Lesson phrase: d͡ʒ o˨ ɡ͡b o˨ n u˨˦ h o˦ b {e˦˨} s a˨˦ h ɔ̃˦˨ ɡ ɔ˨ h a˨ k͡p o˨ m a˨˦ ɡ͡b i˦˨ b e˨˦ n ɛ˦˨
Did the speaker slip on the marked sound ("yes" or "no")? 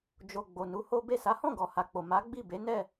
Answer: no